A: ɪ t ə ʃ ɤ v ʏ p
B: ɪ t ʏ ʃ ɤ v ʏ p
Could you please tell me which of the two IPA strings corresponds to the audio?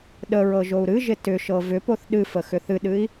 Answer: B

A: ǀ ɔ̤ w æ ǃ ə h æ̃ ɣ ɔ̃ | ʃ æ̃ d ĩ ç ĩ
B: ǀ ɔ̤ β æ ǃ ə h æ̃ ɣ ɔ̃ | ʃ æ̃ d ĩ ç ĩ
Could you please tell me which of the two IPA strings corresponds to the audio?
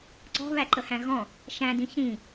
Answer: B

